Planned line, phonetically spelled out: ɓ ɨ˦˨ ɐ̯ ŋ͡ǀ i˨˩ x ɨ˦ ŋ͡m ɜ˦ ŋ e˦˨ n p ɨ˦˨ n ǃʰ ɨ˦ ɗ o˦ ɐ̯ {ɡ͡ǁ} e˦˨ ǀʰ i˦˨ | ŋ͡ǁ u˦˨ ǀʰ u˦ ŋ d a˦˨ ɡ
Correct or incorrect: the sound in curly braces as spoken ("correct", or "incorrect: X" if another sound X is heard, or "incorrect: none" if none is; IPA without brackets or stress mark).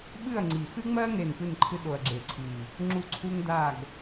correct